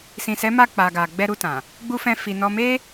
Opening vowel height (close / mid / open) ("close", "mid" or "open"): close